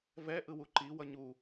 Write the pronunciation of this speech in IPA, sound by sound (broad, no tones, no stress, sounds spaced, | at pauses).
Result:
v ɛ ʔ ɯ w u ǃ i w ʌ ɲ u